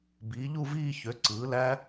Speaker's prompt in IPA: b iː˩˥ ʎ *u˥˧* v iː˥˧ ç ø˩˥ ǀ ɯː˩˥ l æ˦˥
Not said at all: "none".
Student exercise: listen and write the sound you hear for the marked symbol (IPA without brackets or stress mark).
u˥˧